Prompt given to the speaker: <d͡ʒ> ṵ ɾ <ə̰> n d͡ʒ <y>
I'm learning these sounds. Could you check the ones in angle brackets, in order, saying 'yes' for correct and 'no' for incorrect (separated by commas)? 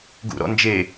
no, no, no